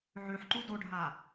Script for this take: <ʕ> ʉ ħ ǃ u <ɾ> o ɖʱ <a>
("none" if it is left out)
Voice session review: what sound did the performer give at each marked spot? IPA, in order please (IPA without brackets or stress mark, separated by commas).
ʕ, d, a